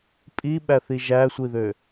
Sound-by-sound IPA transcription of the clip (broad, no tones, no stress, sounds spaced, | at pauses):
pʼ i ɓ æ θ i ʒ æ sʷ i ð ø